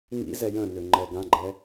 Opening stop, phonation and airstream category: click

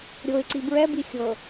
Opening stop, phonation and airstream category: click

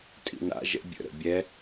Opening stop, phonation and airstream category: ejective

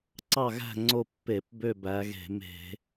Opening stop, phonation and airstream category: click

